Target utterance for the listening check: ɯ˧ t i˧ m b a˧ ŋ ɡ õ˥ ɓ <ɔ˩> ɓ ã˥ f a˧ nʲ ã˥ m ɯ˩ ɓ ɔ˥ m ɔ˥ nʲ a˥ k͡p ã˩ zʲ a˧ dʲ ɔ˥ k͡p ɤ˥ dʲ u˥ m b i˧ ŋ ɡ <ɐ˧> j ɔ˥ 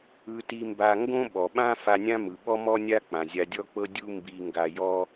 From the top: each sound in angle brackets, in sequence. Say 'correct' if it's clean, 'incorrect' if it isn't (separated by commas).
correct, incorrect